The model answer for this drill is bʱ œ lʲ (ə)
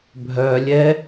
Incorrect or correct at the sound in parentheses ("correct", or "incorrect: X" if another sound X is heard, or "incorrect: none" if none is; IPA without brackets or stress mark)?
incorrect: ɛ